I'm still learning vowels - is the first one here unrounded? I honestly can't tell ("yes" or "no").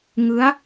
yes